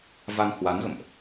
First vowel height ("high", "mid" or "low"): low